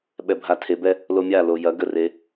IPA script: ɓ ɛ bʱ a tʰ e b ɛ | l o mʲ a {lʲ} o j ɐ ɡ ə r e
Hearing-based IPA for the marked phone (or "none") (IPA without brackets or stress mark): l